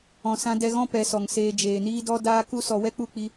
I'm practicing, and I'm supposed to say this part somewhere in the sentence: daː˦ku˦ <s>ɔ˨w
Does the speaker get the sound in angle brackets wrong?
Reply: no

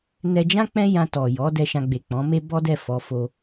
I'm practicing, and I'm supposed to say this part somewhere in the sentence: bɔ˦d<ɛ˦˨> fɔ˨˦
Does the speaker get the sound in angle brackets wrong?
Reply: no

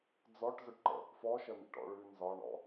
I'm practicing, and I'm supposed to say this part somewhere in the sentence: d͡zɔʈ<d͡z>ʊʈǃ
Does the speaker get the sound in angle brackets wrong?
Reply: yes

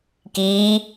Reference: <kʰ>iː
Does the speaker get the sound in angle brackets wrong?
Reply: yes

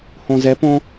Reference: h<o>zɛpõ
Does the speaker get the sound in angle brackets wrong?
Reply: yes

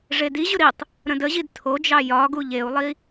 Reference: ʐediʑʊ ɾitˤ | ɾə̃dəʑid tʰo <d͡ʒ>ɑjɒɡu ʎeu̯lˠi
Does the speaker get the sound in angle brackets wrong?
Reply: no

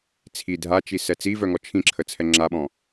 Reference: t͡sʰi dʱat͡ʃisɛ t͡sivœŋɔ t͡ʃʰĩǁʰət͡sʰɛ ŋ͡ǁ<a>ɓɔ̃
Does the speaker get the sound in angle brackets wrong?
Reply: no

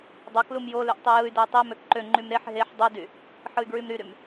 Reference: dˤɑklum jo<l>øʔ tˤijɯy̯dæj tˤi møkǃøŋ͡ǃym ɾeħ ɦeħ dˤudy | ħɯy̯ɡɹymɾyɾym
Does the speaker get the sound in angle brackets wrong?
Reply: no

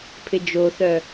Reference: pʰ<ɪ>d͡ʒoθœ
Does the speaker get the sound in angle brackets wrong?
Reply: no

